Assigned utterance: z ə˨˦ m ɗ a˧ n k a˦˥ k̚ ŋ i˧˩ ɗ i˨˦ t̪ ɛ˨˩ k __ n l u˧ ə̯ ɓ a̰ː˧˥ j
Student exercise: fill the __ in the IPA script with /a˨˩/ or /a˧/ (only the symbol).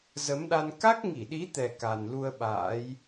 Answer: a˨˩